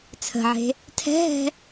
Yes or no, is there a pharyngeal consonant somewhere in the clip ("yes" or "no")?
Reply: yes